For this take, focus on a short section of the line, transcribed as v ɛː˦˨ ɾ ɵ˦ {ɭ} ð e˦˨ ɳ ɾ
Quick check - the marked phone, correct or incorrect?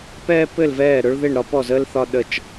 correct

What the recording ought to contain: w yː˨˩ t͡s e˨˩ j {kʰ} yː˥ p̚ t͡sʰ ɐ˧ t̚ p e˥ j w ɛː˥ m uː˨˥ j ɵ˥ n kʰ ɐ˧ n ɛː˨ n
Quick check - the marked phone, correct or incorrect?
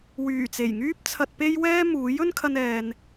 incorrect: ŋ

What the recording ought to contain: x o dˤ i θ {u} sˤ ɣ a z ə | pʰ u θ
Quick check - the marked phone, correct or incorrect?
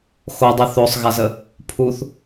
incorrect: o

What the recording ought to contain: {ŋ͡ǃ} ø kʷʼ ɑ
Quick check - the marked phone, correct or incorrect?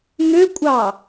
incorrect: ŋ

